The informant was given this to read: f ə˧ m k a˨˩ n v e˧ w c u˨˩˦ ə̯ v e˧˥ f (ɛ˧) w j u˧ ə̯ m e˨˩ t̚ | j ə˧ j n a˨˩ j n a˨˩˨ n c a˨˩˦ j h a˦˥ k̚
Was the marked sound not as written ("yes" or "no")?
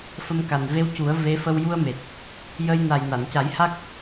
yes